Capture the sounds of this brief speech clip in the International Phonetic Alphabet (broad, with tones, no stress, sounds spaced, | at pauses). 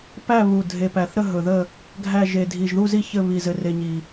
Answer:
p æ˥˨ β u˨˩ dʱ e˨˩ p æ˨˩ θ ɾ ə˥˨ ɦ ɵ˨˩ ð ə˥˨ | ɡʱ æ˥˨ ʒ e˨˩ dʱ i˨˩ ʒ ð u˥˨ z i˥˨ ç ɘ˥˨ β i˨˩ z ɘ˨˩ r e˨˩ ɲ i˨˩